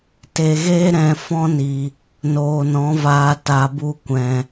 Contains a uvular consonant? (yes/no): no